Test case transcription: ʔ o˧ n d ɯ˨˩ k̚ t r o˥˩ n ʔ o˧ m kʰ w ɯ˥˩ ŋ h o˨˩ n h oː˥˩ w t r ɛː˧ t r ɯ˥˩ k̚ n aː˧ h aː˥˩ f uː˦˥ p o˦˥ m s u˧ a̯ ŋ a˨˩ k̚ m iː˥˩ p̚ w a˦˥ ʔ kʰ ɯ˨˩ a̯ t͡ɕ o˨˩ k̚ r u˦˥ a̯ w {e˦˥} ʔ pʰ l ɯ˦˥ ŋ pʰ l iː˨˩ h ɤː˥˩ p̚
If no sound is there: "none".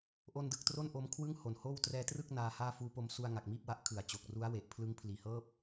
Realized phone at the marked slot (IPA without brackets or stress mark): e˨˩